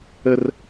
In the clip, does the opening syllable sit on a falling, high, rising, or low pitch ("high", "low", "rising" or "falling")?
high